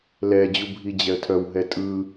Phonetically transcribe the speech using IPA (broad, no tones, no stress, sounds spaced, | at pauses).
l ɛ d͡ʑ u bʱ i d͡ʑ ɛ ə̯ tʰ œ w ɦ ɛ tʼ ɯ